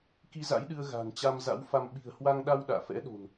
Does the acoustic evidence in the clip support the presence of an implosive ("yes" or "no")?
yes